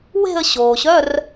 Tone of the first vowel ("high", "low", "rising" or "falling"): falling